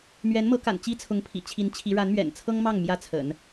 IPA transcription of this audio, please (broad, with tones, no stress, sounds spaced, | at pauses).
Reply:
m ɥ ɛ˧˥ n m ɤ˧˥ k a̰˨˩ n t͡ɕ i˥ t͡sʰ ʊ˧˥ ŋ pʰ ḭ˨˩ t͡ɕʰ i˧˥ n t͡ɕʰ i˧˥ ɻ a˧˥ n m ɥ ɛ̰˨˩ n t͡sʰ ɤ˥ ŋ m ɑ˥˩ ŋ m j ä˥ t͡sʰ ə̰˨˩˦ n